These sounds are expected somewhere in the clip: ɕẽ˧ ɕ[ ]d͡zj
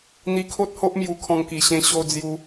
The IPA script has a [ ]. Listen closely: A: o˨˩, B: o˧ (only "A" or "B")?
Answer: B